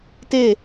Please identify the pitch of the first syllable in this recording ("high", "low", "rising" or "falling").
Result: falling